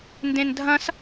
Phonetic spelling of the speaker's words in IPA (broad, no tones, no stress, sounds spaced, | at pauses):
n d ẽ n dʱ ɐ̃ s